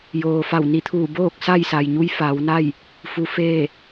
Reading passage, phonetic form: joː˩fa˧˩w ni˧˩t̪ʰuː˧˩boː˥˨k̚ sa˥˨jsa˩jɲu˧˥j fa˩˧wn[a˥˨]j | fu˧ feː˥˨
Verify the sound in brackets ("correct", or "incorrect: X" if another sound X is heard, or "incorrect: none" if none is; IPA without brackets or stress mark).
correct